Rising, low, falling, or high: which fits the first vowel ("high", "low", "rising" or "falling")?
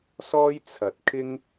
high